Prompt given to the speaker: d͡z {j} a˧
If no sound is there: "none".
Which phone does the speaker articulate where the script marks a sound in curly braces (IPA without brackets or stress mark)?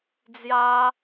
j